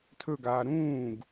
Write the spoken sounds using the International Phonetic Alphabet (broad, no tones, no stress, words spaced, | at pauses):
tʰɵɡaː ɾũːɡ